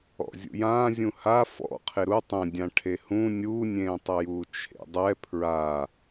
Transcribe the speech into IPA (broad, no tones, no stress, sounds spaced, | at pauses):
ɔ̰ zʲ ṵ j ãː zʲ ũ h a f ɔ̰ qʰ e ɾ u tˤ ẽ dʲ ã ʈʰ e h ũ nʲ uː nʲ ẽː tˤ ɵ j uː t͡ʃʰ ḛ dˤ ɛ pʰ ɹ a